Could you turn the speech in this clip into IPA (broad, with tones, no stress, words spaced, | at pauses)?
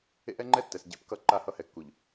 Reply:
ḛ˦ʔɛ˦ŋ͡ǃɛ˦tːɛ˨s ɟḛ˦pkʌ˦ ǃa˦˨hʌ˦hɛ˨kːu˨ʎ